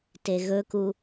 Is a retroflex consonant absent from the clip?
yes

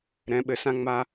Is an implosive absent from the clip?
no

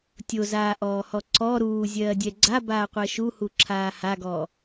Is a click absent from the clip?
no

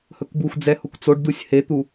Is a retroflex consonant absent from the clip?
no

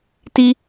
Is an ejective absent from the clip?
yes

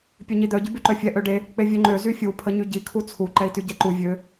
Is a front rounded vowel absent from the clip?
no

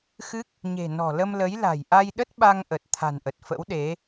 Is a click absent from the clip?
yes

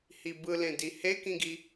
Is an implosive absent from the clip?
yes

